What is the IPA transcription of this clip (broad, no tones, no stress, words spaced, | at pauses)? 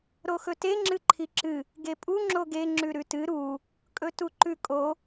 ɾoxɵte ŋ͡ǁɨǃʰiǁɨ | ɡepʼu ŋ͡ǁoɡe ŋ͡ǁʉɾʉtɨ ɾu | kʼɵtuǃʉkʼo